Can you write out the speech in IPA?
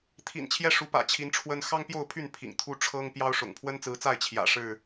t̪ʰḭ˨˩n t͡ɕʰjɛ˦ʂu˨˦ pä̰˨˩t͡ɕʰi˨˦nʈ͡ʂʰwə˦n xɑ˦ŋpjo˥˨ʊ̯pʰy˥˨n pʰḭ˨˩ŋt̪ʰu˦ ʈ͡ʂʰɤ˦ŋ pjɑ˦ʊ̯ʂʊ̰˨˩ŋ pʰwə˦nt͡sɹ̩˨˦t͡sa˥˨ɪ̯ t͡ɕʰjä̰˨˩ʂɻ̩˥˨

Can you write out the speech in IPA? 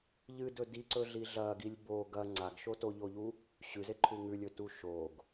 ʎɨdɵ diǀɵɮi ɮɐɡilʲ bo ɡɐ ŋ͡ǀaɡʃo toʎoʎu | ɕʉzeǃʰu ŋʉlʲɵtu ʃoɡ

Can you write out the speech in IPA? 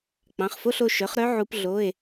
k͡pɑ̃˩˧˩χfo˧˥˧ɬo˩˧ ʃœ˩˥χɾœ˧˥ ʕu˧˥p ɮo˧˥˧e̯

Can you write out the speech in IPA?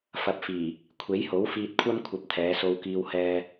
fɐ˨˥p̚fiː˨˩ | kʷʰe˨˥jho˨˥wfiː˧t̚kʷʰɐ˥m kʷʰɐ˧p̚t̪ʰɛː˨˧so˧w kiː˥whɛː˥

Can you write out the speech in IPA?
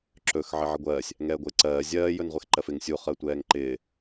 ǁɵx ʕɪʕɪɡʷɜːsʲ | ŋɛːɡʷɪːǀɜː zʲɜː jɵnʁʷexǃɜfɪŋ sʲu χɜtʷɛːŋǃɪː

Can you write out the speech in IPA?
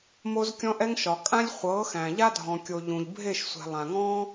mo˧zkʲɔ̃˧ʔɛ˧ŋʃɒ˨ kʼã˦lʲχʷɤ˨˦xæ̃˨ ʎa˦dʱɔ̃˨kʲo˨ ʎũ˨ʎ bʱe˦˨ʃsʷɛ̤˨ lˠã˨ŋɔ̃˦

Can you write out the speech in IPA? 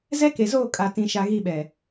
zɛ˦ke˨zoː˦˨ kʼa˦tĩ˦ʃa˦ ɣi˦˨ ɓɛ˨

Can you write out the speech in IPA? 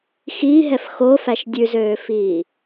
xiːɦɛf xofæʃ dʲʉzøːfiː

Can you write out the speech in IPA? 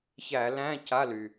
çæ˧˩˧læ̃˧˥˧ ca˧˥˧ly˩

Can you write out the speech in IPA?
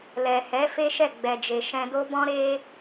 lɛ˨hɛ˨˦ fe˦ʃɛ˦˨ ɡ͡bɛ˨d͡ʒe˨ ʃɛ̃˧do˦bɔ̃˦ ɾe˦

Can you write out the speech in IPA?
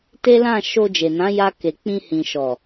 te˦lã˦˨ ʃo˧d͡ʒe˨nã˨˦ ja˧ke˨ k͡pĩ˧hĩ˨ ʃɔ˨

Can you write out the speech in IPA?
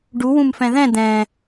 ɖu wũmfɛ̃ðɛ̃ d̪ɛ̃

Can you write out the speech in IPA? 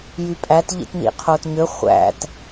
jypʼæt ʎḭtnḭqʰotɲø χʷæ̰t

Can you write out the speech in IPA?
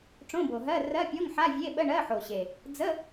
ʈ͡ʂõ˧˥˧bo˨˩ɦɜ˧˥˧ rɜ˧˥˧pʲo˧˥˧ŋħa˧˥˧ vʲe˧˥˧ɓə˧˥˧ ɳɜ˧˥˧ħo˨˩ɕe˨˩ | d͡zə˧˥˧

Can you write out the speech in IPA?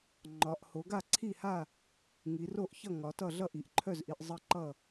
ŋ͡ǃɒ˩˧ʔ ho˩˧ ɡa˥˨ǀʰi˥˨ha˥˨ | ŋi˩˧ro˥˨ʔçʌ˥˨ ŋɒ˩˧tʌ˥˨ ɮʌ˥˨ʔi˩˧ʔǃʰœ˥˨zʔi˩˧ʔ zˤə˥˨ǃʌ˥˨

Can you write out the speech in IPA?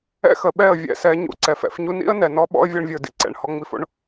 ɛ̰˦xə˨ ɓɛ˦˨ə̯vʲɛ̰˦˨ sɛ˧ ɲṵ˧ǀɛ˨fɛ̰˧f ɲu˧nḭ˦ə̯ nɛ˧ nɔ˦ ɓɔ̰˦ə̯vʲɔ˧ɳvʲə˞˨ dḭ˦ǀɛ̰˨ɳ hɔ˧ŋ͡mi˧fo̰˦ɳ

